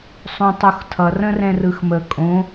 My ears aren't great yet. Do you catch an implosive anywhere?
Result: no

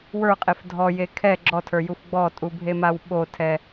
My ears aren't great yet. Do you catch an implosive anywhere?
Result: yes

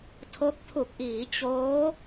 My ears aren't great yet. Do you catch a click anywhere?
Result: no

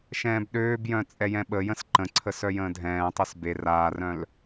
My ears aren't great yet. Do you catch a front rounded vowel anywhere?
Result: yes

